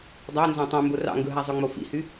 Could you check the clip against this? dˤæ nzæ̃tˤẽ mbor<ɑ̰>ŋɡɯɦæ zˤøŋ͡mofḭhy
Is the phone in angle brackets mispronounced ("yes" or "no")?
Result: no